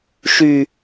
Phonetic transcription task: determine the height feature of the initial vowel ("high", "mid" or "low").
high